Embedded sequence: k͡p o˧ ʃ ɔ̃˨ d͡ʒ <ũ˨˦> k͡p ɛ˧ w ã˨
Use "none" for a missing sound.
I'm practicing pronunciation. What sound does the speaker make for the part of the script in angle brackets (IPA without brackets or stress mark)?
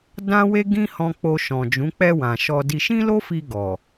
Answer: ũ˨˦